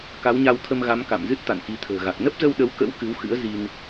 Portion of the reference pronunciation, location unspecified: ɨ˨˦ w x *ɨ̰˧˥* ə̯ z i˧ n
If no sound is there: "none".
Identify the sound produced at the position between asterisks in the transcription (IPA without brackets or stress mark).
ɨ̰˧˥